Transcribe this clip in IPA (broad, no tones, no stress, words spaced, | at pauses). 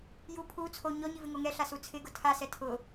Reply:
ju pʰu t͡sʰo ɲɔɲi vɪŋoŋɛɬa sut͡sʰɪɡʊ tʰasɛ tʰʊ